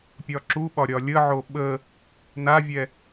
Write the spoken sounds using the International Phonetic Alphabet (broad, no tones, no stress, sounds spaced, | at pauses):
pʲ ɒ ǁ u ɓ ɒ ɾʲ ɒ lʲ ə ʕ o ɓ ə | n a vʲ ɛ